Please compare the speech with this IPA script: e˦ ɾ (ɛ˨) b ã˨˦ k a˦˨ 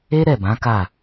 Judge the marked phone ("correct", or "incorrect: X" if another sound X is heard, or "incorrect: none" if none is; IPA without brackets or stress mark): incorrect: ɛ˦˨